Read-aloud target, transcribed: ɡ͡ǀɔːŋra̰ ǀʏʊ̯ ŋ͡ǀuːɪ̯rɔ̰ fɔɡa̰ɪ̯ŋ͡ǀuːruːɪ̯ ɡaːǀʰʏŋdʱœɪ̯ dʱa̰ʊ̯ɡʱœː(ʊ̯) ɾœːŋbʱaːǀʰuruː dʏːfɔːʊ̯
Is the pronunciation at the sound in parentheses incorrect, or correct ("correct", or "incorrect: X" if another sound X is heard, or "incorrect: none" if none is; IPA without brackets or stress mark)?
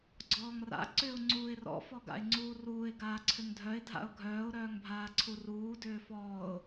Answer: correct